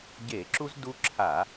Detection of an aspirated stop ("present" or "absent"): present